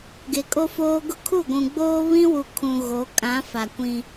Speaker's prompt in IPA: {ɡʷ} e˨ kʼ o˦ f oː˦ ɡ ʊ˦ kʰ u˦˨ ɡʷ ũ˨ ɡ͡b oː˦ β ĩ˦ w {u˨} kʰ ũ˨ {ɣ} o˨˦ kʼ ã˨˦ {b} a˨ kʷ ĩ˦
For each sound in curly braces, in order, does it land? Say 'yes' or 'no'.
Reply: no, yes, yes, no

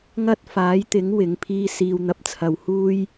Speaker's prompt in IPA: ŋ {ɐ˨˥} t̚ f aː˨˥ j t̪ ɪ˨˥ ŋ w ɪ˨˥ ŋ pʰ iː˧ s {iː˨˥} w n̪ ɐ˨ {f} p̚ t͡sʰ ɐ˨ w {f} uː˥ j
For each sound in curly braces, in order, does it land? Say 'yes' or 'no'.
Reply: no, no, no, no

